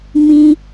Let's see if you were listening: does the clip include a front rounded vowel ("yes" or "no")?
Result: no